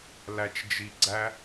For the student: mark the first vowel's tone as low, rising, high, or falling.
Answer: low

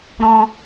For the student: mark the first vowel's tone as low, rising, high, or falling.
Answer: high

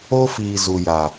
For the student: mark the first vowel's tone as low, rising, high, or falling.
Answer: high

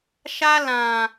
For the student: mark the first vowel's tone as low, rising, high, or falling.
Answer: high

